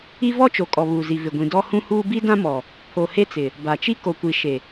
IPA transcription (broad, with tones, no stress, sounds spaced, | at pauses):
i˦ v ɔ˦ t͡ʃ o˨ kʼ ɔ˨ β uː˨ z i˨ v ɪ˨ ɡʷ ĩ˨ d ɔ˦ h ũ˦ h uː˦ b i˦ d ã˦ m ɔ˨ | pʰ o˨ h e˦ t͡s ɪ˨ | b a˨ t͡ʃ i˦ k o˨ kʷ i˨ ʃ e˨